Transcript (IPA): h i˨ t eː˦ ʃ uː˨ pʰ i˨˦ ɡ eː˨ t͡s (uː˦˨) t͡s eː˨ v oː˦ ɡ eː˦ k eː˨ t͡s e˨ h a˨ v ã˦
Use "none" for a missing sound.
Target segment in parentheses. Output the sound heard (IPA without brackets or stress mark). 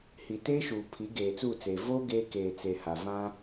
uː˦˨